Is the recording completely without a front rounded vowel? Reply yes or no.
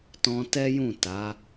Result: yes